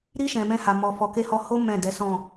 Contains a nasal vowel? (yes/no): yes